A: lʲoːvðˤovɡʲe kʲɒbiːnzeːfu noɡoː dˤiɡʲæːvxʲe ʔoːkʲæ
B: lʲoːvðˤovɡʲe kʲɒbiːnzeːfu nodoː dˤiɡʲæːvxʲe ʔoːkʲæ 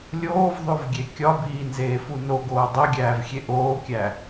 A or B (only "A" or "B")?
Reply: A